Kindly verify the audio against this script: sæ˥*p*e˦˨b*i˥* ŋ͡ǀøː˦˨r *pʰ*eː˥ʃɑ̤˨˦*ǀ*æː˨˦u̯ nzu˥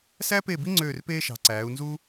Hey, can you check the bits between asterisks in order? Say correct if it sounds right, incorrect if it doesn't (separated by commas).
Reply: correct, correct, incorrect, correct